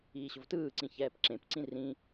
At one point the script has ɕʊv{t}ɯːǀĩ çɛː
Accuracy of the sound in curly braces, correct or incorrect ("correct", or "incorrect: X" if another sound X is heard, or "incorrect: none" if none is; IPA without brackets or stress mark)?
correct